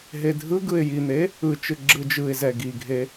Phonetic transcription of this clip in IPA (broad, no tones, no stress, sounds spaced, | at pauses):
ɦ e dʱ ɯ ɡ ɯ ɪ̯ j i n̪ e | ɯ t͡ʃ ɯ ɡ͡ǁ ɯ d͡ʒ ɯ ɪ̯ z ɛ ɡ i ɡʱ e